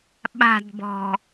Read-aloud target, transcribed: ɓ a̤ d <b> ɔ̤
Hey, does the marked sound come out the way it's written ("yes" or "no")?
yes